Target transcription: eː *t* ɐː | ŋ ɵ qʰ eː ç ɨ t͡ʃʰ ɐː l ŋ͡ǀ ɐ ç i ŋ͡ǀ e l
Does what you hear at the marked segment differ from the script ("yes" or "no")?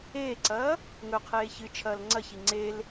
yes